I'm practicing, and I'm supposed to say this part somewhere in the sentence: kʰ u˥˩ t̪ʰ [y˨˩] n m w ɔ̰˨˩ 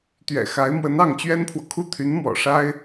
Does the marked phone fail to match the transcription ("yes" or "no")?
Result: yes